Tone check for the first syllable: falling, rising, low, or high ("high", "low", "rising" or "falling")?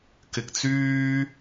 low